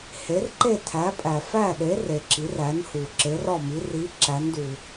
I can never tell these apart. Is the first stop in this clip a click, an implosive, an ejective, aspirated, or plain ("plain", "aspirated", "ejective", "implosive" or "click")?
click